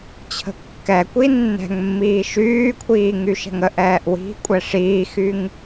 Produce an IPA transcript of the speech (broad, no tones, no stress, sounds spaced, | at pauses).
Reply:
t͡ɕʰ ə̤ kː ɛ kʷ i nː ɛ̤ ŋ mː iː ʃ yː kʷʰ iː ŋ y ʃ ɛ̤ ŋ ə ʔ ɛː ʔ w i̤ kʷʼ ɛ ʂ iː x y ŋ